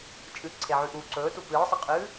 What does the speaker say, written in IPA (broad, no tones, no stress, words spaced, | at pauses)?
t͡ʃʼɨǀʰeʕʉʔuː ǀɵːtu pɨːsˤaqʼɨː